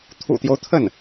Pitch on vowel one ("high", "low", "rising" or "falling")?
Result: low